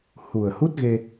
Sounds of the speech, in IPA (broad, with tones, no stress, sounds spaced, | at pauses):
h u˨˩ ə̯ h u˦˥ t̚ ɣ e˧